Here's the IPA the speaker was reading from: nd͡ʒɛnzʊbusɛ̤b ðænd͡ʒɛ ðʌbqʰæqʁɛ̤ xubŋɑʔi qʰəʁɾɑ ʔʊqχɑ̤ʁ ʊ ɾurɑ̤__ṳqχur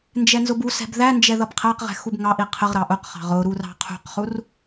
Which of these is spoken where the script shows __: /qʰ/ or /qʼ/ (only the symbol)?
qʰ